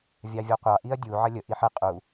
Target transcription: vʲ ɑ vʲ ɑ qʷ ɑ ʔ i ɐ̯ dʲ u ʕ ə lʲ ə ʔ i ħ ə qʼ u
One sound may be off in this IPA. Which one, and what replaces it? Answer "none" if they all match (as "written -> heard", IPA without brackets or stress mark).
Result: none